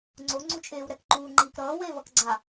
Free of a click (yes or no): no